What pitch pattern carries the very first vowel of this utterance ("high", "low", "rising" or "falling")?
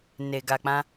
low